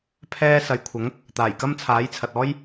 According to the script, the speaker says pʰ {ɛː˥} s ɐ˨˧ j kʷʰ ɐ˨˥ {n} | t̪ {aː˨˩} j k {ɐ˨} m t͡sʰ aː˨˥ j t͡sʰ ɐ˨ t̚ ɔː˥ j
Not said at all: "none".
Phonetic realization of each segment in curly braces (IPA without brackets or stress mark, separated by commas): ɛː˥, ŋ, aː˨˩, ɐ˥